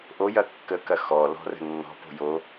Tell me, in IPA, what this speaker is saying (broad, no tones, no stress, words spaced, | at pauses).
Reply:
ʔojɐ kːəkɐ xɔlɔ̤rə̤ nːɔ̤po̤ jo